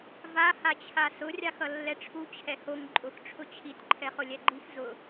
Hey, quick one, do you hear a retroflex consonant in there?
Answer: yes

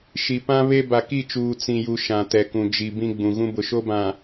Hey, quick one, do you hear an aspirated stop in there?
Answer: no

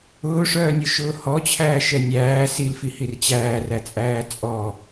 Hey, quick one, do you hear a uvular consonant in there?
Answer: no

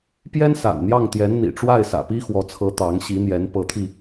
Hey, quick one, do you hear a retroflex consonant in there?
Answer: yes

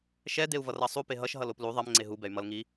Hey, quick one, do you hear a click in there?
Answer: yes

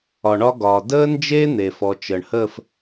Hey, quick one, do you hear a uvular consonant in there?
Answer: no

